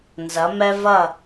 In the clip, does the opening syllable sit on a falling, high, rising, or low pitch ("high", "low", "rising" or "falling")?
rising